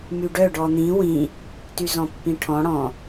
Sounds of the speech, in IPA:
myɖœ ɖɔn̪ĩ wĩ | tyzɔ̃pːĩʈʰɔ̃ ɽɔ̃

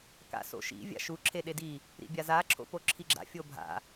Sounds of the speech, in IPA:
ka̰so̰ʃḭ vʲa̰ʃu ǁʰeɗedi | ɾḭbʲaza ǁʰo̰poǁʰiɡ͡ǁa̰ fʲobʱa̰

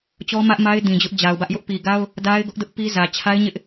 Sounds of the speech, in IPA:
t͡ɕɔ˦mä˦ʔma˦ɪ̯ dĩ˨d͡ʑʊ˦ʔd͡ʑa˨ʊ̯bä˦ʔ jʊ˦ʔpi˨ɡa˦ʊ̯ | da˦ɪ̯ ɡʊ˦ʔdʊ˦ʔ pi˦zä˨ t͡ɕʰa˦ɪ̯ɲɪ˦ʔ

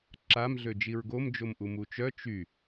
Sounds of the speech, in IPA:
ǁam ɮød͡ʒiɹɡom d͡ʒomʔumut͡ʃœ t͡ʃy

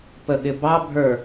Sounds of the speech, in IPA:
pəɠɪbɑbʱə˞

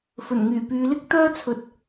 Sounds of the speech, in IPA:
fɵ˨˩nŋyː˨˩pyː˨˧ lɪ˥k̚t̪œː˥t͡sʰɵ˨˥t̚

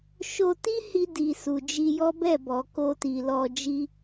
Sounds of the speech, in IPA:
ʃo˧ti˦hi˧ di˨su˨d͡ʒi˧jɔ˦ bɛ˦˨bɔ˨ ko˧ti˨lɔ˧d͡ʒi˦

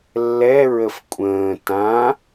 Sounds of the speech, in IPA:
lːɛɹəf kʷʼə̃ː tã

